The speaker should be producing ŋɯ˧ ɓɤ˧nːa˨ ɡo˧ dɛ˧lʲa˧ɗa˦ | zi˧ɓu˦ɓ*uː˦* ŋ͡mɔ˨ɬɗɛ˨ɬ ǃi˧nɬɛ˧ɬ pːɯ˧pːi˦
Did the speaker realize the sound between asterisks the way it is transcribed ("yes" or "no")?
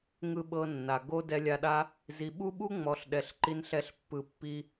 no